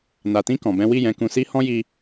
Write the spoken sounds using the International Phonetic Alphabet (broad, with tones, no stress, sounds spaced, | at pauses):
n a˨ t ĩ˧ k ɔ̃˨ b ɛ̃˨˦ w i˦˨ j ɛ̃˨˦ k ũ˧ s i˦ h ɔ̃˦ j i˧